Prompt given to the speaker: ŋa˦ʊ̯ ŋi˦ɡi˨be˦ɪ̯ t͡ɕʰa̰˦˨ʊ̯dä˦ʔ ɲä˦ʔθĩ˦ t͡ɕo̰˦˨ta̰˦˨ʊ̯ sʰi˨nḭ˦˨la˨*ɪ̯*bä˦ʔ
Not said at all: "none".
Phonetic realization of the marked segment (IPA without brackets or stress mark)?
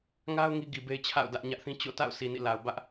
ʊ̯